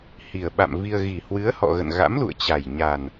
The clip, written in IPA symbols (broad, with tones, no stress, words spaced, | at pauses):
hi˨˩ə̯ɓa̰˧˨m vi˧ə̯ ɣi˨˩hwɨ˨˦ə̯hɔ̰˧˨ɣə̰˧˨n ɣa̰˧˥mlṵ˧˨ə̯t͡ɕa˨˩j ɲa˨˩n